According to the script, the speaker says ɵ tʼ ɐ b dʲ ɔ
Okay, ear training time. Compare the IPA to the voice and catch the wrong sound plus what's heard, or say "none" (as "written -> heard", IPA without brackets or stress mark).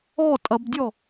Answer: ɵ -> ɔ